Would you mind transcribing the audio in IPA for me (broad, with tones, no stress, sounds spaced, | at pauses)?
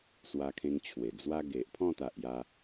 s w a˧ kʰ ẽ˧ ŋ t͡ɕʰ w e˨˩ d͡z w a˦ ɡ e˨ ʔ pʰ ɔ̃˥˧ t̪ a˨ ʔ j a˧